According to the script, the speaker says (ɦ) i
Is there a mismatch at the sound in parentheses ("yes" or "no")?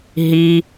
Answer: no